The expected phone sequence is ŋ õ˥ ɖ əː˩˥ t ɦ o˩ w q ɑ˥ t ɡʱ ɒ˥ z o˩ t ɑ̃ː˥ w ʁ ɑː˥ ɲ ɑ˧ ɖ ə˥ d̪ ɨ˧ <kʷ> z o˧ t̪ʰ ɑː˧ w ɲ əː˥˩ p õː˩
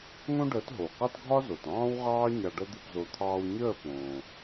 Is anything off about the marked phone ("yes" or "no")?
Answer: yes